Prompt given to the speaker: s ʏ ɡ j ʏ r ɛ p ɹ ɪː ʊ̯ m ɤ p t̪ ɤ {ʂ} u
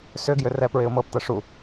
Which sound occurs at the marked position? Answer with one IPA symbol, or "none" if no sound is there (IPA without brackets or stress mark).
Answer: ʂ